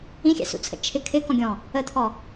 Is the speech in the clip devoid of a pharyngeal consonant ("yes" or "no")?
yes